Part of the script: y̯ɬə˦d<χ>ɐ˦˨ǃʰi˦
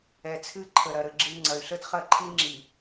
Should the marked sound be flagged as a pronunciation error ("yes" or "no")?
no